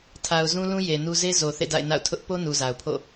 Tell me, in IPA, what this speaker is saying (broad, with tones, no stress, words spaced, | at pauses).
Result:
tʰa˨ʊ̯zũ˦lũ˦ je˨nu˦ ze˦ zo˨ θḛ˦˨da̰˦˨ɪ̯na̰˦˨ʊ̯ tʰʊ˦ʔ po˦ nu˨za˨ʊ̯ pʰo̰˦˨